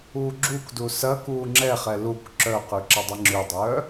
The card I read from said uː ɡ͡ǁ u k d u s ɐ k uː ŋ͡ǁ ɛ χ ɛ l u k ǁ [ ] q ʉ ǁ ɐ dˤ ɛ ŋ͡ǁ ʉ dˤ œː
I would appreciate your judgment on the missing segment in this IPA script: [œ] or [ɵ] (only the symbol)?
œ